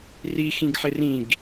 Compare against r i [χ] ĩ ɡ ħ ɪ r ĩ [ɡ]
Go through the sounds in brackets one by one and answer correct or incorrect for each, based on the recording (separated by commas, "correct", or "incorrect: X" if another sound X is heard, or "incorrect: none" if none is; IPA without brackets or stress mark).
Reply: incorrect: x, correct